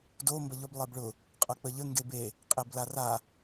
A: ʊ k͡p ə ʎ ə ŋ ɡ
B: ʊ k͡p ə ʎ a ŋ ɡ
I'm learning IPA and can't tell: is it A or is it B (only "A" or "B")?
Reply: A